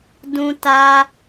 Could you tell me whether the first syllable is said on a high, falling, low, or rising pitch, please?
high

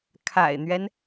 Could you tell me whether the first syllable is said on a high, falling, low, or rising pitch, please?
low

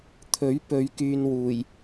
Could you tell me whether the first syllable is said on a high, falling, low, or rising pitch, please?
rising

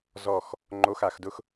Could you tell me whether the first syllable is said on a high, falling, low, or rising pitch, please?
falling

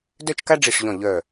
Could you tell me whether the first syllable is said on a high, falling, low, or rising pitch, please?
falling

